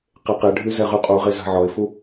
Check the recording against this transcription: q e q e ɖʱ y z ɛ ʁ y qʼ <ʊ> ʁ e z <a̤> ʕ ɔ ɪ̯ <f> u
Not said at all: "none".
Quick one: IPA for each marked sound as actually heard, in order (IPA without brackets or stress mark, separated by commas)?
u, a̤, f